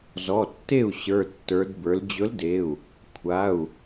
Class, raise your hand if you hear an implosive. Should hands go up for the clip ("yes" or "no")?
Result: no